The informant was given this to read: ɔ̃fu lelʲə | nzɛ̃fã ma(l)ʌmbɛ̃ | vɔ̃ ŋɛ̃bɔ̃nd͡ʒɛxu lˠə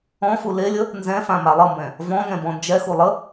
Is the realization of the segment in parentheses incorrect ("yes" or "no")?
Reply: yes